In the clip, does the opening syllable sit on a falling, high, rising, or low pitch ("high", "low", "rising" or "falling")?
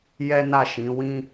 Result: high